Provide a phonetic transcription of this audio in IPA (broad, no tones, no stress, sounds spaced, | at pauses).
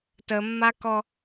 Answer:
t ə mː a k ɔ